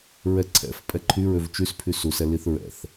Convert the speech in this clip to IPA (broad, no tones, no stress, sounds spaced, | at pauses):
ɹ ɛ ǀʰ ɛ̰ f pʼ ɛ ǃʰ y ɹ ø v t͡ʃ y s pʰ y s u s ɛ l i θ ɹ ɛ̰ θ